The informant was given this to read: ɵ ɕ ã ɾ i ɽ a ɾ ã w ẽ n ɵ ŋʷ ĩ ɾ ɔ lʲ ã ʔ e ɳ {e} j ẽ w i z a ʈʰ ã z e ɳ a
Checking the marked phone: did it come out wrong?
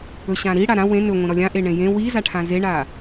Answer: yes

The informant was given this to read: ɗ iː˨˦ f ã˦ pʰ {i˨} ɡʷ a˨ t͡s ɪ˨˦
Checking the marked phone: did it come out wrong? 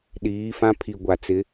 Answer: no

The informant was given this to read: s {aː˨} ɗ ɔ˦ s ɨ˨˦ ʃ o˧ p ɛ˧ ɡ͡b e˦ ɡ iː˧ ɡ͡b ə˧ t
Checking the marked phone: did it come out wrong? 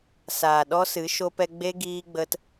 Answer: no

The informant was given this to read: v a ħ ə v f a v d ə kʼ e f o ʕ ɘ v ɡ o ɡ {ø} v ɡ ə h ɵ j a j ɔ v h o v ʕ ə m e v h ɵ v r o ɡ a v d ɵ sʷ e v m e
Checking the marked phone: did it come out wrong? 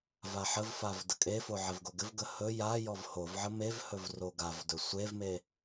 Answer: yes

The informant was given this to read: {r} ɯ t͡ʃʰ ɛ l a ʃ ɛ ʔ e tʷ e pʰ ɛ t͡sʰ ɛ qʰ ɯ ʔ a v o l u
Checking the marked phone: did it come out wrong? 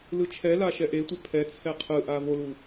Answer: yes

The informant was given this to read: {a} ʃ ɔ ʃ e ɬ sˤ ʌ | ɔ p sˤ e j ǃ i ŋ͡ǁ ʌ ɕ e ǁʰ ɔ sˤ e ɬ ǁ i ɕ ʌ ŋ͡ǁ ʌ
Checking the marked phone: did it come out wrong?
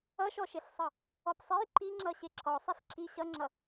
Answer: yes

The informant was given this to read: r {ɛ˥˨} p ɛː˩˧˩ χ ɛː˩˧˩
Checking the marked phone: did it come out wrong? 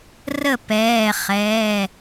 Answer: yes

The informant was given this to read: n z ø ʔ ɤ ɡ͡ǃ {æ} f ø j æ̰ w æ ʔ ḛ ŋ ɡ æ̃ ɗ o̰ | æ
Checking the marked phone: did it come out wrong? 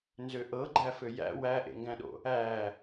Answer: no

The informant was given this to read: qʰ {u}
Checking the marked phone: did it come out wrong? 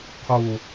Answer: no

